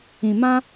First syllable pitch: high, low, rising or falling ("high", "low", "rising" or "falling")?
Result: low